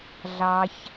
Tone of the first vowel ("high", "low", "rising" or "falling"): high